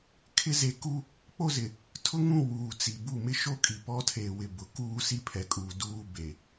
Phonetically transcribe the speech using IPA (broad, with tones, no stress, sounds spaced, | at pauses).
kʰ ɪ˦ z e˨ k u˦ | k͡p o˦ z ɪ˨ | tʰ ʊ˦ ŋ ũ˦˨ w uː˨ t͡s i˨ b u˦˨ m ɪ˦ ʃ o˦ kʼ i˨ p ɔ˦ tʰ e˨ w ɪ˨ b ʊ˨ k uː˦ s i˦ pʰ ɛ˨ kʼ uː˨ d uː˦ b e˨